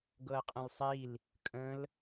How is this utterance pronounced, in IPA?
ɡ ɤ ə̯ qʼ ə̃ l sˤ i l | kʼ ə̃ l

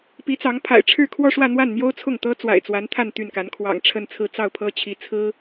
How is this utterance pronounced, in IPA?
p i˧˥ t͡s ɑ˧˥ ŋ pʰ a̰˨˩ ɪ̯ ʈ͡ʂʰ ɻ̩˥˧ kʰ w ɔ˥˧ ʂ w ä˥˧ n̪ w a˥˩ n n̪ j o˥ ʊ̯ t͡sʰ ʊ˥˩ ŋ t̪ ɤ˥ t͡s w a̰˨˩ ɪ̯ t͡s w a˧˥ n t̪ʰ a˥˧ n t̪ y˥˩ n k a˧˥ n kʰ w ɑ̰˨˩ ŋ ʈ͡ʂʰ ə˥˧ n t͡sʰ ɹ̩˥˧ t͡s ɑ˥˩ ʊ̯ pʰ ɤ˥ t͡ɕʰ i˧˥ t͡sʰ ɹ̩˥

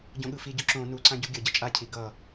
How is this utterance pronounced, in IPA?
ɟ õ ɠ ɯ f i ɟ o ǁ õ n u ǀ ã ɟ u ɡʲ ʌ ɟ ʌ t͡ʃʼ a cʰ i ɡ ʌ

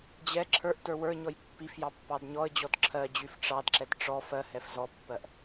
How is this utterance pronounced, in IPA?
d͡ʑ ɛ ǁʰ ə˞ ʔ t ə˞ w ə˞ ɲ ɔ j pː i f j ɑ pː ɑ d ɲ ɔ ə̯ d͡ʑ ɔ d ǁʰ ɜ d͡ʑ y f ʈ͡ʂ ɑ d ǁ ɛ t ʈ͡ʂ ɔ f ɜ h ɛ f z ɔ pː ɜ ʔ

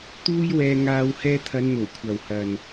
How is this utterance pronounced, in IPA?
t̪ uː˥ j w ɛː˧ ŋ aː˧ w h ɛː˧ t̪ʰ ɐ˨˧ n n̪ o˨˩ w kʷʰ ɐ˨ w h ɐ˨ n

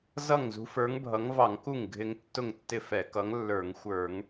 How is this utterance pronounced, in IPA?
z ʌ˥˩ ŋ z ṳ˨˥ f ə˞˨˥ ŋ bʱ ʌ˨˥ ŋ v ɑ˧˩˧ ŋ k u˥˩ ŋ ɡʱ ɪ˦ ŋ tː ʊ˥˩ ŋ tː ɪ˥˩ f ɛ˧˩˧ k ʌ˨˥ ŋ lː ə˞˧˩˧ ŋ xʷ ə˞˧˩˧ ŋ

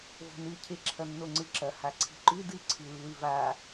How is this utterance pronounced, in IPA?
v o̤ n ɨ cʰ e ǁʰ ɐ nː o ŋ͡ǀ ɨ ǁ ɐ h a ǀʰ i̤ ǃ ʉ d ɨ ǀʰ ɨ lː ʉ v a

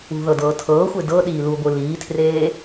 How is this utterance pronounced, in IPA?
ṳ ð ɤ d ɤː tʰ ɤː xʷ e d ɤ ɗ iː l u ɡʷ ɯ l iː tʰ r eː

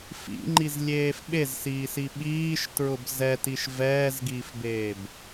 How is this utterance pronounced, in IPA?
f ḭ ŋ͡ǃ i z lʲ eː f ɓ e z s iː s i ɓ iː ʃ t ɹ ʊ b z ɛ t i ʃ v ɛː z ɡ iː f b eː b

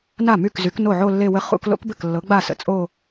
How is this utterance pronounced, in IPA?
n a˥˩ m y˥˩ k z y˨˥ k n o˥˩ ʕ o˥˧ lː e˥˧ w ə˥ χ ṵ˥˧ k l o̰˥ k b ɘ˥˩ k lː ɤ˨˥ ɡ͡b a˥˩ s ə̰˧ t͡sʼ o˥˧

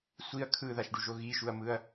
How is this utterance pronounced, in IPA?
sʷ i ɐ̯ kʰ ɯ ð a ʃ ɖ u ʒ o ɣ i ʃ u ɐ̯ m ɯ ɐ̯

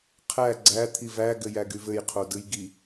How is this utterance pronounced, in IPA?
qʰ æ ɡ͡ǀ æ t̪ʰ i v æ ɡ ɘ j æ ɡ y v ɘ j qʰ o d ɯ j ɡ i

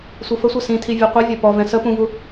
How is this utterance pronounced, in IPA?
sʷ i f ə sʷ ɜ s ĩ tʰ i vʲ ɛ qʷ i vʲ ɒ p ɔ v ɛ̃ s ə p ũ v u

